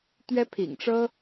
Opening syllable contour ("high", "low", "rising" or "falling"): high